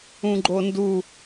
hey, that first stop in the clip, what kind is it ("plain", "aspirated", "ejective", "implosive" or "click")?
click